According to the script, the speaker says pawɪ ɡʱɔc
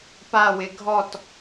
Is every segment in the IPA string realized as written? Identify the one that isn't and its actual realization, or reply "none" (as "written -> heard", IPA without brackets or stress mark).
c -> t